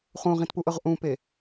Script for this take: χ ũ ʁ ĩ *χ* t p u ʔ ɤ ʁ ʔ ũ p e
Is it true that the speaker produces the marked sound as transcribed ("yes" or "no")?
no